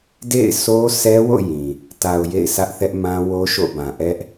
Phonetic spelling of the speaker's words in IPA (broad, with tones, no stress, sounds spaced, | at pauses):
d ḛ˦˨ ɪ̯ s o˦ s ɛ˦ w o̰˦˨ j ĩ˨ | t a˨ ʊ̯ j ḛ˦˨ ɪ̯ s ä˦ ʔ θ ɛ˦ ʔ m ã˦ w o˦ ʃ o̰˦˨ b ã˨ ʔ ɛ˦ ʔ